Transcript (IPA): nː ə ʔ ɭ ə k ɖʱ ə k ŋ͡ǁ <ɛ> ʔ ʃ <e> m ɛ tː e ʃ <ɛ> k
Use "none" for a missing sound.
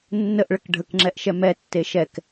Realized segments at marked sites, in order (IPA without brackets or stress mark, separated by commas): ɛ, ɛ, ɛ